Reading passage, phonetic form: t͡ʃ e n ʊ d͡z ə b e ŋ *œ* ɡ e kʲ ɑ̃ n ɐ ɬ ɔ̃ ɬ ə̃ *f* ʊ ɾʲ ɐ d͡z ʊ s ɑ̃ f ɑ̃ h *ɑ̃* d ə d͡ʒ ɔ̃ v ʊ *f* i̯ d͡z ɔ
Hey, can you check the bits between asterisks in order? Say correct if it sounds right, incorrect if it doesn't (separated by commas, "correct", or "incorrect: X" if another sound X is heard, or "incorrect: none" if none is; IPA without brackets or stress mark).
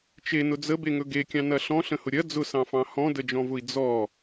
incorrect: ɵ, incorrect: h, incorrect: ɔ̃, incorrect: none